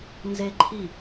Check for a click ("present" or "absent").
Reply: present